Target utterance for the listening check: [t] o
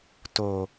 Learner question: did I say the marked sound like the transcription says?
yes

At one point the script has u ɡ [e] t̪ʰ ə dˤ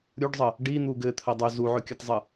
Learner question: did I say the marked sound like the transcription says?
no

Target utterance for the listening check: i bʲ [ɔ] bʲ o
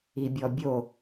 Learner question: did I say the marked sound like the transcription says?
yes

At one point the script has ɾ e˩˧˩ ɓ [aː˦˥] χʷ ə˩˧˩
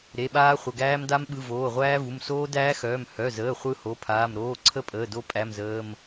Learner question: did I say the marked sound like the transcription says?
yes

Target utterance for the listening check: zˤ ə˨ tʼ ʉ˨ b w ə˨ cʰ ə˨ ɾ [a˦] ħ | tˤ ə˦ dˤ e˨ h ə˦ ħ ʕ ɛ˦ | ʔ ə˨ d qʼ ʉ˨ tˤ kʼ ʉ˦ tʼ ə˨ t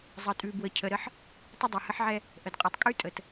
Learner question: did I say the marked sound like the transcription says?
no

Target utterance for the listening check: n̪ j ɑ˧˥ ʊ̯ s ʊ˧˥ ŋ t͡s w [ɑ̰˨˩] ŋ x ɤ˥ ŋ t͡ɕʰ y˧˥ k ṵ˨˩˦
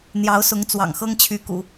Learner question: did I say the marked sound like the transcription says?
yes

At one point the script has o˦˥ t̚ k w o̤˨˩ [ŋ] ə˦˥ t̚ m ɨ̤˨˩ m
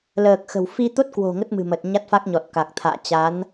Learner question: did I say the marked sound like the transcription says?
yes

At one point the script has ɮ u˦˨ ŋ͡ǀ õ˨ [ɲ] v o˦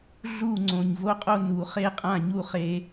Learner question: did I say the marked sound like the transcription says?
yes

